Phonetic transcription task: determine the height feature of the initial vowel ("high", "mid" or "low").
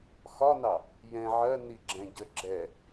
low